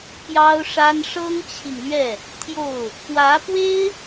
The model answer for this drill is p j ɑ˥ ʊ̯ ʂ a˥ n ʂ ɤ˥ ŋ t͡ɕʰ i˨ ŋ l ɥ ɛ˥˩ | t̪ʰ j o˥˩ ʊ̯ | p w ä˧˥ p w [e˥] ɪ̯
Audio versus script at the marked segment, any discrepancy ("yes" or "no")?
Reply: no